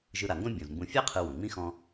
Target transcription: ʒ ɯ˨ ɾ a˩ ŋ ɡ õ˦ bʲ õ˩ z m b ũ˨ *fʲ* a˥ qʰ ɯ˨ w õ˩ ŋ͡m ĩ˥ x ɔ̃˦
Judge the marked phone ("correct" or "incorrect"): correct